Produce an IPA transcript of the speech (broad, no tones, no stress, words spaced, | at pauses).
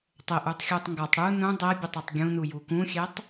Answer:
tˤɘʔutˤxʲutˤ ŋɡɔtˤ ɽu nũ dˤɛbʲœtˤɛtˤ ɡʲũnuju kũxʲɛtˤ